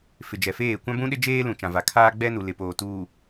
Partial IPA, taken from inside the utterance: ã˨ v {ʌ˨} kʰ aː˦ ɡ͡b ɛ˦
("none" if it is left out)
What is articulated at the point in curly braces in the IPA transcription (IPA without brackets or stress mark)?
a˨